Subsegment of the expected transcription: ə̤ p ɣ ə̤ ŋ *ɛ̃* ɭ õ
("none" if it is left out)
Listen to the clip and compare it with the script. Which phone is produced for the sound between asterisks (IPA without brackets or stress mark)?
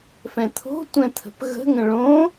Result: ə̃